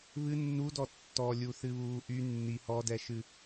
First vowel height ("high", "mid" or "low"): high